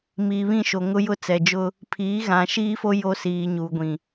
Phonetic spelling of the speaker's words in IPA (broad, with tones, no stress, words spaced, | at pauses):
miː˨βĩ˦˨ʃo˨ ŋʊ˦jʊ˦t͡sɛ˨d͡ʒʊ˦ | pʰiː˨˦ɣã˨ʃiː˦fo˦ jo˦siː˨ ɲuː˨ɡʷĩ˨